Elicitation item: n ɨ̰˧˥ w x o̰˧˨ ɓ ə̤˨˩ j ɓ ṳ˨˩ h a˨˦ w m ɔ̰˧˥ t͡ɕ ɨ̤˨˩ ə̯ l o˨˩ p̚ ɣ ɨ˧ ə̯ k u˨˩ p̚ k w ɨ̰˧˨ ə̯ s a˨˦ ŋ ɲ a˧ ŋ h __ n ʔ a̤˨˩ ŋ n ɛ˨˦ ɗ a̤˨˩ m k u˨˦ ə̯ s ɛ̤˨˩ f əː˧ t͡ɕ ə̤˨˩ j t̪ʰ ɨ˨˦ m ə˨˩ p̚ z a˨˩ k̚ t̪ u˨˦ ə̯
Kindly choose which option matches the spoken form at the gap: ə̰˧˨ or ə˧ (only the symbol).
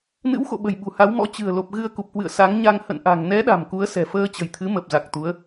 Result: ə̰˧˨